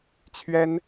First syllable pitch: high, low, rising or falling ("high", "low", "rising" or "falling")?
high